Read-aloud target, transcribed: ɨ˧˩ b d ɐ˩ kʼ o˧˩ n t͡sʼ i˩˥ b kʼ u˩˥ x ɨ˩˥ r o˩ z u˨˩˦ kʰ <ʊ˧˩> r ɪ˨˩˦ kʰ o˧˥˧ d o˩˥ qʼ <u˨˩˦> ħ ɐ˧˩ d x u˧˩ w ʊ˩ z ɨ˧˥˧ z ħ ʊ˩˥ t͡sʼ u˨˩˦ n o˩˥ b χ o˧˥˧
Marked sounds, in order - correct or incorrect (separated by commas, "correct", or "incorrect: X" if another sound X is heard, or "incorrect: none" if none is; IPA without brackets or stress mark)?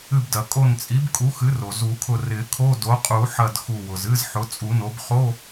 correct, correct